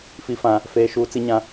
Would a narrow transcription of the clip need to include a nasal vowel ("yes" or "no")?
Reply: yes